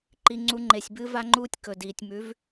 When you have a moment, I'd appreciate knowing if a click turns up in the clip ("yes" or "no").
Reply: yes